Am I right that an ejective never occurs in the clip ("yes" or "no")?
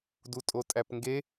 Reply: no